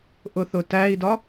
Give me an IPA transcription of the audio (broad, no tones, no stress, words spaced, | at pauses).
ʔʊθʊtæi̯dɒ